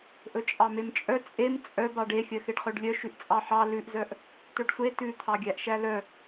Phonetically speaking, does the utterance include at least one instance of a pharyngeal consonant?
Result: yes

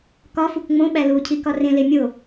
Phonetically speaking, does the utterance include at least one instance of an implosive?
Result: yes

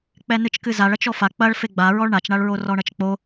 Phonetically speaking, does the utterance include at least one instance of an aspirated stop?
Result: no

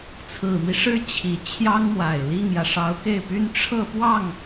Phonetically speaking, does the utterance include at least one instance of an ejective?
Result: no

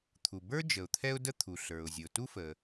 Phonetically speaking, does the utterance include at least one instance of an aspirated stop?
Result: yes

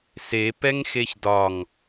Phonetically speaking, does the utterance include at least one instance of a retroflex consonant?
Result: no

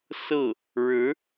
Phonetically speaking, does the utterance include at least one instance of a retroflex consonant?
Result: yes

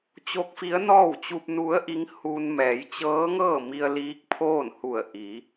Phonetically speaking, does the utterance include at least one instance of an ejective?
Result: no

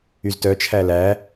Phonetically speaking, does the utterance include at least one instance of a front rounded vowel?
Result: yes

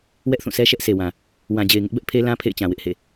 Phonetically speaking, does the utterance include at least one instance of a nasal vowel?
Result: yes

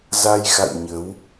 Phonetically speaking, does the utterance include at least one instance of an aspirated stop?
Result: no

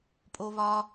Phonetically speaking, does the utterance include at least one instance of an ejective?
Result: yes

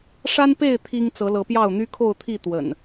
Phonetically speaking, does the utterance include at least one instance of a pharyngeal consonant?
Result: no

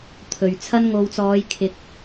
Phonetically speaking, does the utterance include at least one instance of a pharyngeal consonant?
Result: no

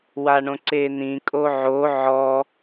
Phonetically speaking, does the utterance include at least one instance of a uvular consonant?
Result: no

